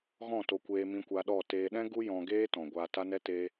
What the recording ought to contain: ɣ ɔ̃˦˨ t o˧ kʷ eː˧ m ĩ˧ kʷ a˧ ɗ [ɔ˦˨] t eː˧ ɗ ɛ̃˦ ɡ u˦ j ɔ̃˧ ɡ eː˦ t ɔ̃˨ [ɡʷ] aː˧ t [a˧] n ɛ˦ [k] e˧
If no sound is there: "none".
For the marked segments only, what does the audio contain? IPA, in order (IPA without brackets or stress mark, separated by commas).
ɔ˦˨, ɡʷ, a˦, t